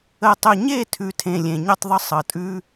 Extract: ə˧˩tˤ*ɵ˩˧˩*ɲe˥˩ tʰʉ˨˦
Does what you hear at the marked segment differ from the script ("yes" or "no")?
yes